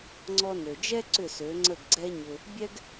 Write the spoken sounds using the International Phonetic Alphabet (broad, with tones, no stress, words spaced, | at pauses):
ŋ͡ǀɔ˧nø˩d͡ʒɛ˥ ǀʏ˥˩sø˩˥ŋ͡ǀə˥˩ɡ ɡ͡ǀɛ˥ɲʏ˧ | bʲɛ˥ɡ